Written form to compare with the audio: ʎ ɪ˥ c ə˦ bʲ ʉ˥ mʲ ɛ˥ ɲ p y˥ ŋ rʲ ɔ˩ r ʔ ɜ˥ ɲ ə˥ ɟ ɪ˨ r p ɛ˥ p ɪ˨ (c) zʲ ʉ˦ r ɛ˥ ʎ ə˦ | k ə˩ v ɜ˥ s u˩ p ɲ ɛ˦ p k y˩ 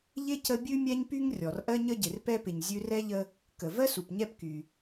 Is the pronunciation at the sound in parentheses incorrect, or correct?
incorrect